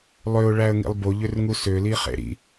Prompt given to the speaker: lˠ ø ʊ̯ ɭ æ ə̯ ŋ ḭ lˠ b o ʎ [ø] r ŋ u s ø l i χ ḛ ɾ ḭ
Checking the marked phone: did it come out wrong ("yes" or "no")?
no